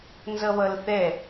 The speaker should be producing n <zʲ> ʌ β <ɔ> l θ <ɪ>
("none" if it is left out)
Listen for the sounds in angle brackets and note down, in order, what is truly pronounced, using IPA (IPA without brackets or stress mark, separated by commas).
z, ʌ, ɛ